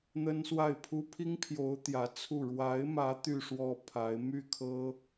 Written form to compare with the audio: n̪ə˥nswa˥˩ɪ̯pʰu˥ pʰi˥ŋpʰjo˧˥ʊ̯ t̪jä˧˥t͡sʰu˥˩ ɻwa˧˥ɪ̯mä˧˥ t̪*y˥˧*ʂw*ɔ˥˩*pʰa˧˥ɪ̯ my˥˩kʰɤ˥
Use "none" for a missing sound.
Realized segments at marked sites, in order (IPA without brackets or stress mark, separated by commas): y˥˧, ɔ˥˩